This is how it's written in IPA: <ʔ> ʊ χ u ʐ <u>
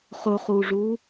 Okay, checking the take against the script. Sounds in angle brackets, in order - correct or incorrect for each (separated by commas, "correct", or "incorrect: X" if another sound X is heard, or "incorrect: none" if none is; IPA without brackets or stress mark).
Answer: incorrect: χ, correct